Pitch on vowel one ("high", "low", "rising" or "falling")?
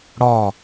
falling